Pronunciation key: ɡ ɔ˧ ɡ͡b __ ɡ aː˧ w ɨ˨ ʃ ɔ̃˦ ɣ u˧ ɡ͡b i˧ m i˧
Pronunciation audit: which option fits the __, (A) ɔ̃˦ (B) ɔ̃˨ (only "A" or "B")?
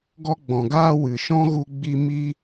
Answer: B